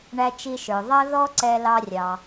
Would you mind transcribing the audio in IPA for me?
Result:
ɳæ˧t͡ʃi˧ʃə˞˩ ðˤʌ˧ðɔ˧ ǀɛ˧lɑ˧ rʲɑ˩

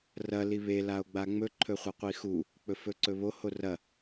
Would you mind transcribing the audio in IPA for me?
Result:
rɐ liβe lao̯ɡ͡baŋ͡mɵ ǃʰɵχʷɐqʷixu | k͡pɵfɵǀɵβo horɐ

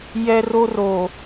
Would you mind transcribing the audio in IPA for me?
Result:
jɛ˦ro˦ro˨

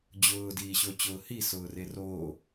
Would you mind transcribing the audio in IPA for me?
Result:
d͡ʑʊː diːɕʊːt͡ɕʊːhi sʊːreroː

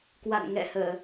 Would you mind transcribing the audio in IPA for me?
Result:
kwa̰˧˨nŋɛ̰˧˨həː˧˩˨

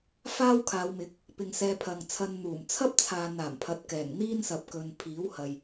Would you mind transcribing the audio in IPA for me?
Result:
faː˥wkʰaː˨˧wmɪ˨˥k̚ | pɪ˨ŋ sɛː˧pʰɐ˨ŋt͡sʰɐ˧n n̪uː˨˩mt͡sʰɐ˥p̚t͡sʰaː˨naː˨˩m pʰɐ˨˥t̚kɛː˨˩ŋ n̪iː˥nsɐ˨p̚kɵ˨n pʰiː˨˥whɐ˨j

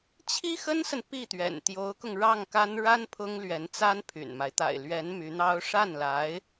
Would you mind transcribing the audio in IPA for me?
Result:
t͡ɕʰi˥xə˥nsə˨n pi˥˩t̪ɥɛ̰˨˩n t̪jo˧˥ʊ̯kʊ˧ŋ ɻɑ˥˩ŋka˥n ɻa˥n pʰʊ˥ŋlɥɛ˧˥nt͡sa˥n pʰy̰˨˩nma˦ɪ̯ t̪a̰˨˩ɪ̯lɥɛ˧˥n my˧˥n̪ɑ˥ʊ̯ ʂa˥˩nla˧˥ɪ̯

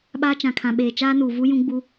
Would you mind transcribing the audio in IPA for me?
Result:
ɓaː˦ t͡ʃã˨kʰã˨ɓeː˨ t͡ʃaː˦nuː˨vu˦ jũ˦ɡ͡bu˦

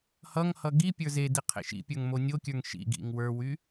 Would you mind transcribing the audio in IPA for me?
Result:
hʌŋhʌ ɡipʲə˞ zedi qʰḛʃḭpʲə˞ŋ monʲokʲə˞ŋ ʃḭɡḭŋ wə˞wy

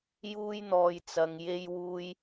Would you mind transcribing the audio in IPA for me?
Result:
juː˥jn̪ɔː˧j t͡sɐ˧ŋ je˥jwuː˥j

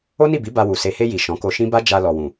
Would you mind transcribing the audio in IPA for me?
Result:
o˦ni˦˨bi˨˦ ba˧wu˨ se˨he˧ ji˨ ʃɔ̃˨˦ko˧ʃĩ˦ ba˦d͡ʒa˧ lɔ˨wũ˨

